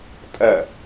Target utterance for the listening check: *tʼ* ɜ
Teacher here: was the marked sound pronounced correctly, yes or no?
yes